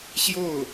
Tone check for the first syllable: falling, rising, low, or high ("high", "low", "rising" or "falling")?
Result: falling